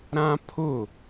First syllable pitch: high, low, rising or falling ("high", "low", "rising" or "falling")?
high